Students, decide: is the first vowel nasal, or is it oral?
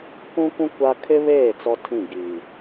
nasal